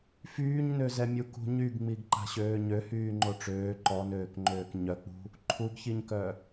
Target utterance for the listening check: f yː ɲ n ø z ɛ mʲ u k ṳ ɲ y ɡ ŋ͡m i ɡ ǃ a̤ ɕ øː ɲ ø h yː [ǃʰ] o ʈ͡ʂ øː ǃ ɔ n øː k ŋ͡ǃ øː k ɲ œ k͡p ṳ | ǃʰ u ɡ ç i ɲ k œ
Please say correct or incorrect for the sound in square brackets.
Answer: incorrect